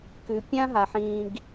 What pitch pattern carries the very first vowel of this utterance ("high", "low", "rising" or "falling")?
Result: low